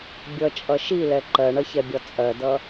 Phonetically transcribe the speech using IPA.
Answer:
bʲʌt͡ʃʼʌ ʃilɛ ǃɜɳʌçɛbʲɒ t͡sʼɜdʌ

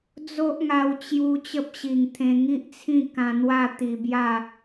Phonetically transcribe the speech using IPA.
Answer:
d͡zo˦ʔŋa˧wt͡ɕju˧ t͡ɕə˦p̚ɕi˨˩ŋt̪ʰẽ˧ ŋi˦ʔt͡sʰĩ˥˧ kã˧n̪wa˥˧ t̪i˧bja˥˧

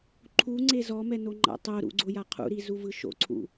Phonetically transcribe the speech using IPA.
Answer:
ǃʰuŋ͡ǀe zɔmɛnoŋ͡ǃa̰ tˤoɾṵɡ͡ǀoja qʰṵɾizuvɯ ʃo̰ǀʰṵ

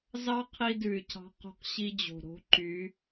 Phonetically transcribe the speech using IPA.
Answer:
zɑ˦ qʰi˦dʉ˨y̯cʰɑ̤˦ qo̤˦qɕi˦d͡ʑo̤˨ ɾo̤˦ǃy˨˦

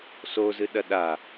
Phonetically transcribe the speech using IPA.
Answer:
sozɨ ɗɐɗa

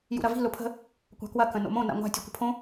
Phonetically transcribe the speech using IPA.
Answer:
jṵɾɐvi̤ lʊpʰə̤ | kʷa̤kwɐ kə̃no̰mõ na̰ŋʷa̤ tʲukʷə̤pʰõ

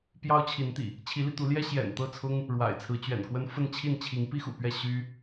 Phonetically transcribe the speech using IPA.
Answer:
pjɑ˦ʊ̯t͡ɕʰi˨˦nt̪ḭ˨˩ | t͡ɕʰi˨˦li˧t̪u˨˦ljɛ˦ ɕjɛ̰˨˩nt̪ɤ˥˨t͡sʰʊ˦ŋ | ɻwa̰˨˩ɪ̯t͡sʰɹ̩˨˦t͡ɕɥɛ̰˨˩nkwə˦n fə˥˨nt͡ɕʰi˥˨n t͡ɕʰi˨˦ŋpi˦xṵ˨˩pɥɛ˥˨ ɕy˦

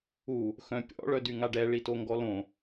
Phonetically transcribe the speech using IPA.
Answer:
u | xœ̃pʲɔ̰ ɭœdyŋaɖɛ ɭitoŋɡɔlõ

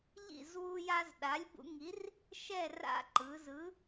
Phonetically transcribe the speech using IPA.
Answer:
ʎḭ˥˨zwu˦ ja˦zɗa˨˥lʲbṵ˦ ŋi˨˥r | ʃɛ˥˨ ra̰˦ǃɯ˩˧zɯ˨˥

